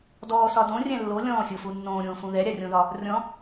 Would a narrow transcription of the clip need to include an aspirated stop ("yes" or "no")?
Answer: no